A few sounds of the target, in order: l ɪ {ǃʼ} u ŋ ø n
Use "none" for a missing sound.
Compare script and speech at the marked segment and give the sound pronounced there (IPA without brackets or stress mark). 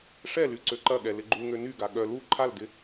ɡ͡ǃ